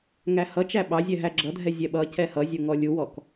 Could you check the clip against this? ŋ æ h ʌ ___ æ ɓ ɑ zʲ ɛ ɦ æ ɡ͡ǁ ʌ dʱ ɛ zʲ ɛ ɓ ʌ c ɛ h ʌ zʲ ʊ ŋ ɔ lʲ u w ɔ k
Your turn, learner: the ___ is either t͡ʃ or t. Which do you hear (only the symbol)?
t͡ʃ